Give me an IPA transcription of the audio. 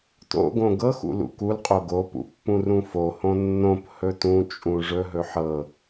t o̰ ɡ õ ɡ ɤ x ṵ l ṵ k u l qʼ o ɡ o p ṵ pː ũ r ũ f o h õ nː õ p h ɵ t ũ t͡ʃʼ ũ ʐ ɵ ɦ ɵ ħ ɤ

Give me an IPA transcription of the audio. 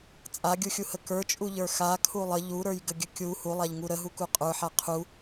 t͡sʼ a ɡʲ u xʲ u h ə k ə˞ t͡ʃʼ u ʎ ə˞ x a kʰ u lˠ ə ʎ u ɾ ə˞ j ɡ ə ɡʲ ə kʲ u h u lˠ a ʎ ŋ u ɾ ə ɦ u k u qʼ ə˞ ħ a qʰ u

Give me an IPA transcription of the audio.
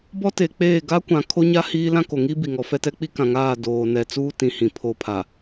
b ɔ˦ t e˨ k͡p eː˦˨ ɡ a˦ kʷ ã˨ kʰ o˦ ɲ a˦ h iː˦ l ã˦ k o˨ ŋ i˦ b i˨ ŋ ɔ˨˦ f ɛ˦ t ɛ˦ k͡p i˦ k ã˨ ŋ aː˦˨ d oː˨ n ɛ˨ t͡s uː˦ t ĩ˨ h ĩ˨ pʰ o˦ pʰ a˨

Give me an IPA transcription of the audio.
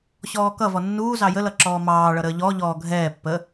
ɕ ɔː k ʌ v ɔ nː uː z ɑ j ə l ʌ ǁ ɔː m ɑː ɭ ʌ ɾ əː ʎ ɔ ʎ ɔː ɡʱ ɛː pː ə

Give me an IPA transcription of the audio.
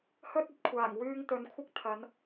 h ɵ˥ t̚ ɐ˨˥ t̚ kʷʰ aː˨˩ ŋ w yː˧ ŋ t̪ ɵ˨ n kʷʰ ɪ˥ k̚ t̪ʰ ɐ˨˧ n

